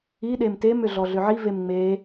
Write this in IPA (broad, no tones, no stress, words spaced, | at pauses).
i ɗemtem ʏɮɔɮʏʕi vemŋ͡me